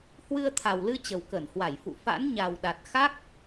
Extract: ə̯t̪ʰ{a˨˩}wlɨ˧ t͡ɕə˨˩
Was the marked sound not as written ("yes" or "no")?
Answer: no